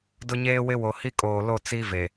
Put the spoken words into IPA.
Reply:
d ʊ˦ ɲ eː˦ w ɪ˦ w o˨ h i˦ kʼ oː˨ l o˦˨ t͡s i˦ v e˨

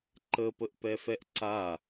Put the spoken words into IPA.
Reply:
ǃ ə p ə ʔ p ɛ f ɛ ʔ ǀ a

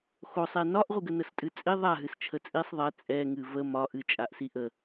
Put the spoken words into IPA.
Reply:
x o sˤ e n ɒ ʔ ʁʷ ɨ ɡ ə n ə s tʼ ɨ t͡sʼ i ðˤ a ɦ ɨ s t͡ʃʰ ə t͡sʼ i sˤ ðˤ ɛ t͡sʼ ɛ ŋ ɨ v ə m ɒ ʔ ɨ t͡ʃʼ a ʔ s i ʔ ə

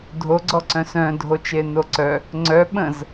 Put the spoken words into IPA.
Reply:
dʱ o ɡ͡ǀ ɔ ǀ œ̃ s œ̃ dʱ o t͡ʃ e n o ǀ œ | ŋ͡ǀ œ ɓ ə̃ z

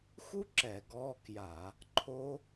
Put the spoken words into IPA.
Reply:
x u˦˥ ǁ ɛ˧˩˧ ɡ ɔ˧˥˧ k j a˧˩˧ | ǃʰ o˦˥

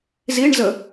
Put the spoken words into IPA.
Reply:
z i ɳ z ə

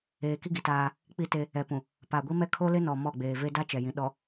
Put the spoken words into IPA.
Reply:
eː˨ k i˦ ɡ i˨ t aː˦ | k͡p i˦ t e˦ | ɛ˨ p ũ˨ | p a˨ ɡʷ i˦ m ɛ˦ kʰ o˦ l ɪ˦ n ɔ˨ m ɔ˦˨ ɡ͡b eː˨ v e˦ d a˦ t͡ʃ ɛ˨ j ĩ˨ ɗ ɔ˨

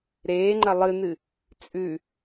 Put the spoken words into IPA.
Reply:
ɾ eː ŋ͡ǃ ɐ lˠ ɨ n̪ ɨ | t͡sʼ ʉ

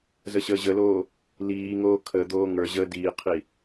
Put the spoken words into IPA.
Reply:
z ə ɕ əː ʑ ə l oː | l iː ŋ oː kʰ ə d̪ oː ŋ ə˞ ʑ əː d iː qʰ i

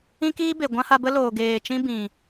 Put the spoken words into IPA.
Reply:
ĩ˦ k iː˦ b e˨ ɡʷ ã˦ h a˧ b ə˦ l oː˨ ɡ eː˨ t͡ʃ ĩ˦ b ĩ˨

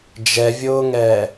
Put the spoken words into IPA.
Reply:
d͡ʒ ɛ vʲ ʊː ŋ ɛː

